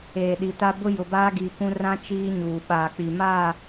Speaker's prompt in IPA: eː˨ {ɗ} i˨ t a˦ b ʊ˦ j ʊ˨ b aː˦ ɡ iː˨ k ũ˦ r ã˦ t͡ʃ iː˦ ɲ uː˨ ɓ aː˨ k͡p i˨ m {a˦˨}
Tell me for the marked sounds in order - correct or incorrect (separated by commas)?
correct, correct